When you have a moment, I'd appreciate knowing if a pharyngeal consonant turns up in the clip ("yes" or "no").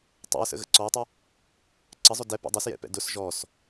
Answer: no